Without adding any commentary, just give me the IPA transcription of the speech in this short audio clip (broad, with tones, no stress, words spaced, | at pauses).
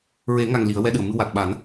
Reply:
ɹe˨˩˦ŋa˨˩ŋ li˨˩˦ə̯wɛ˧ɗɨ˨˩˨ə̯mɨ˧ wa˨˩t̚ɓa˨˩˦n